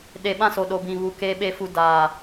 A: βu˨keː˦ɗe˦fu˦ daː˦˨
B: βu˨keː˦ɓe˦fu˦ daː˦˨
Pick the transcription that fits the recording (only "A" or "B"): B